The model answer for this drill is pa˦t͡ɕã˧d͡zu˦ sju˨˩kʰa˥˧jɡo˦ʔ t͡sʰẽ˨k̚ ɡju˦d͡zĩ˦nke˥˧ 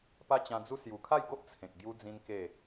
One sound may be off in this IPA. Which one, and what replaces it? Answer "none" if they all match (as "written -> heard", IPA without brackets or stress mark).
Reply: none